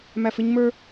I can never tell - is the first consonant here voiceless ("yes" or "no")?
no